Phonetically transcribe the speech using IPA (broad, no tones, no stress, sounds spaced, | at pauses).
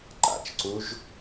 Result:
ǃ a̰ t͡ʃ ǀ u ʒ